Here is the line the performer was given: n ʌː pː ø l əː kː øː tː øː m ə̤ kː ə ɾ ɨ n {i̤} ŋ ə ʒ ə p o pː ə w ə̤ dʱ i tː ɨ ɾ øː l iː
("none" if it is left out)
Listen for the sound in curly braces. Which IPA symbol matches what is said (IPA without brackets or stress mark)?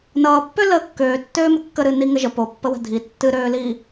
i